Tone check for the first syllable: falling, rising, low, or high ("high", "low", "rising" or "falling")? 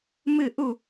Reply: falling